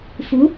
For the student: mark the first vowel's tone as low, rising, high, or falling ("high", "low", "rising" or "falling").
rising